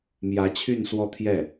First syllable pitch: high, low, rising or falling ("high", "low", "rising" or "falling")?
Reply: rising